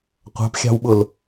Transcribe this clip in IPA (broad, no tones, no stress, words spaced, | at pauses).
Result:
qʷɑ̤pxʲɑ̤wɓʊl